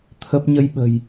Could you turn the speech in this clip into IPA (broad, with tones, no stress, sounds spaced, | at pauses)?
t̪ʰ ə˦˥ p̚ ɲ ə˧ j ɓ ə̤˨˩ j